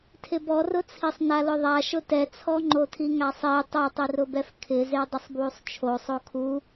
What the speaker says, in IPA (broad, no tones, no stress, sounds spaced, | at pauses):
tʰ ɪ b ɔ r ʊ t͡sʰ i sˤ n a l ʊ ðˤ a ʃ ʊ t ɛ t͡sʰ ɔ ŋ͡ǃ o tʰ i ŋ a sˤ i tˤ a tˤ i r ʊ b ɛ f kʰ ɪ z e dˤ ɪ sˤ b w u sˤ t͡ʃʰ o sˤ o kʰ u